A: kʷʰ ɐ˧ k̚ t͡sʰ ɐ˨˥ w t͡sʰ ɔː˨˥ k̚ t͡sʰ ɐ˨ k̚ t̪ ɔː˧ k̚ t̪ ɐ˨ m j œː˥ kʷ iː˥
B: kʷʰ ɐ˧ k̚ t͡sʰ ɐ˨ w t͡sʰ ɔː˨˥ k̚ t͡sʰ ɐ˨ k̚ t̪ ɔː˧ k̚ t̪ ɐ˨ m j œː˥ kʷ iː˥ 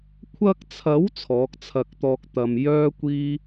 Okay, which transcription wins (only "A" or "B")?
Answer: A